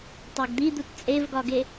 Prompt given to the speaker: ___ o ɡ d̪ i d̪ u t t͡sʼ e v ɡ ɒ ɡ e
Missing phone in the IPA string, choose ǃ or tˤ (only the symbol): tˤ